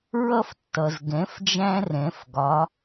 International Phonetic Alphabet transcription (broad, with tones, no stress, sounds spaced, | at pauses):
ɹ ʌ˦ f tː ʌ˩ z ɡ ɛ̃˩˥ f d͡ʒ æ̃˦ r ɛ̃˩˧ f ɡ ɒ˩˧